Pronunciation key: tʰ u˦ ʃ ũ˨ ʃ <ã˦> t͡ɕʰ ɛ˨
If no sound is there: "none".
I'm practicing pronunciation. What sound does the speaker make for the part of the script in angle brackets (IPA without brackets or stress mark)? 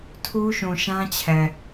ã˦